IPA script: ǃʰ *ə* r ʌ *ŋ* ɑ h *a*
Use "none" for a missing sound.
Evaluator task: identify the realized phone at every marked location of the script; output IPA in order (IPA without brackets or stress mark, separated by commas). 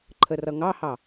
ə, ŋ, ɑ